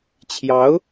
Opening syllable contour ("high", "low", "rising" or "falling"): rising